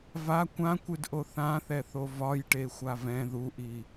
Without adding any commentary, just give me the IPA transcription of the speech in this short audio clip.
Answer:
va kʷãkʷɨdʔo θãθɛθo vɒjʈexʷav ɛ̃ ðuʔi

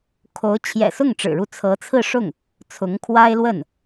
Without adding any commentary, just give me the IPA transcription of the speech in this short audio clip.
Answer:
kʰo˧˥ʊ̯ t͡ɕʰjɛ̰˨˩ sʊ˥˩ŋʈ͡ʂɻ̩˨˩ɻu˥˩ t͡sʰɤ˧˥t͡sʰɹ̩˥˧ ʂʊ˥˩ŋ | t͡sʰʊ˧˥ŋkʰwa˥ɪ̯lwə˥˩n

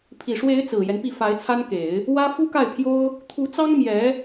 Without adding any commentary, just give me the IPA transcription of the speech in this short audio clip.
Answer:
pʰi˨˩ʂwe˧˥ɪ̯ t͡sɹ̩˨˩jɛ˦npi˥˩ fa˧˥ɪ̯t͡sʰa˥nke˨˩˦ɪ̯ | wä˥ fu˥ka˥˩ɪ̯pʰjo˥ʊ̯ | t̪ʰu˧˥t͡sɑ˥ŋ mjɛ˧˥

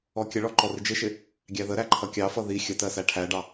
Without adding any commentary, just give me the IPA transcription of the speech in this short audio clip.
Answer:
ɔkʲəɭɔ ǃɔrɪd͡ʒɪʃɪ | ɡʲæðəɾæ ǃʰʌkʲɑfʌ ði xʲətɜ sæʈʰæɖɑ

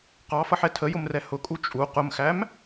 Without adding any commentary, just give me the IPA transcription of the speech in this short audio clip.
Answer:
qɑfʌħɛ tʰəjʊmrɛ hʊkʼu t͡ʃʼu qʊmxæm

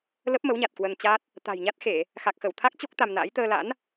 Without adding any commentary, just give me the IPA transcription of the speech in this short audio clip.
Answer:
lə˦˥p̚mə˨˦wɲa˨˩t̚ kwə˧nt͡ɕa˦˥t̚ | t̪a̤˨˩jɲa˦˥t̚xe˧˩˨ | xa˨˩k̚xə˧˩w t̪ʰa˦˥k̚t͡ɕo˦˥k̚ t̪a˧mna̰˧˥j t̪əː˧la̰˧˥n

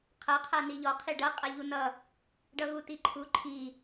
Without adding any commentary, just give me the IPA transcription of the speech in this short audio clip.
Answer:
qʰʌ qʰaniʎɔ qʰiɖʌ qʼaʎunʌ | ɖʌɣutiǃʰu ǃʰi

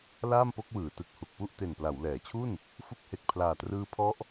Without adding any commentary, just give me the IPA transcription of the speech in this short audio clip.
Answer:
laː˥˩mpo˦˥k̚wɯː˩˦ tɯ˨˩k̚hu˨˩k̚pu˥˩ʔ te˨˩npla˩˦wlɛː˩˦t͡ɕʰu˥˩n | fu˦˥k̚he˨˩k̚ pʰlaː˨˩trɯː˦˥pʰɔ˦˥ʔ

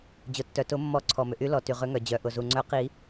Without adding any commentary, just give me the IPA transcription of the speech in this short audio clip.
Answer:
d͡ʑʊ˩tːœ˩tʊ˨˩˦mːɔ˨˩˦ ǀʰɔ˩mʏ˩ʔy˨˩˦ lɔ˩ ty˩ʁʏ˨˩˦ŋœ˩ d͡ʑœ˩ʔʊ˩zu˩ ŋ͡ǀœ˨˩˦ qi˨˩˦

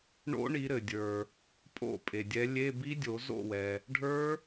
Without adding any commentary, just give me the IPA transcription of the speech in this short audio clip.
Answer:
ɳo̰˦˥ɳi˨˦ɾɘ˩dʲə˞˩ | pʼo̰˥˩ pʼe˩dʲɛ˨˦ lʲe˧˥˧bi˦˥dʲo˨˩˦ zo̰˥˩wɛ˩ | ɖʱə˞˦˥

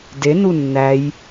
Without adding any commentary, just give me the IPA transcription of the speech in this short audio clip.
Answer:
denu nːæj

